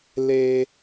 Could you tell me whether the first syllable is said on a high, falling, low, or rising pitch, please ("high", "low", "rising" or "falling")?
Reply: low